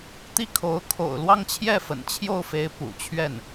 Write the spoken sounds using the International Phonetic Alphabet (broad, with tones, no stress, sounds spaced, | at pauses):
t̪ i˥˩ kʰ o˧˥ ʊ̯ kʰ o̰˨˩ ʊ̯ l w ɑ˥˧ ŋ t͡ɕʰ j ɛ˥˩ f ə̰˨˩ n t͡ɕʰ j o˥˩ ʊ̯ f e˧˥ ɪ̯ p ṵ˨˩ t͡ɕʰ ɥ ɛ˥˩ n